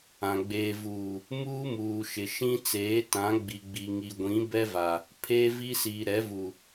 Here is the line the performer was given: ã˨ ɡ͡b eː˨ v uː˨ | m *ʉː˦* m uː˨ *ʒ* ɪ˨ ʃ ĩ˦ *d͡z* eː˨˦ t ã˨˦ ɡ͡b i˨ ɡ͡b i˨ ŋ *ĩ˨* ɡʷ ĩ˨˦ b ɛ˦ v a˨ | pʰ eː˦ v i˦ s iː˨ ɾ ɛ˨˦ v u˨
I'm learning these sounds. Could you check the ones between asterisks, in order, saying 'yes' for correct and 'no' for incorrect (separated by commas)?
no, no, no, no